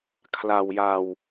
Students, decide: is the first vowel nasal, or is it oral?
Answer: oral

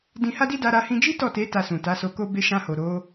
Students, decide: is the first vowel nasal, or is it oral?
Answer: nasal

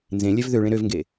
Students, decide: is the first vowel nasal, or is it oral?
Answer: nasal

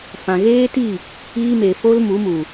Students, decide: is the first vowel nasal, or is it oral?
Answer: nasal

